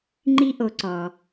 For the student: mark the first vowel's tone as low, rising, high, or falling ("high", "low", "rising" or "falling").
high